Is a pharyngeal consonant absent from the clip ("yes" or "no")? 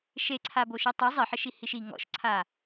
no